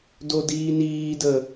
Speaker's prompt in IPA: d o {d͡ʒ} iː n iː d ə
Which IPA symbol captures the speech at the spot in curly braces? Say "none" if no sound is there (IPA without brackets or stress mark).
d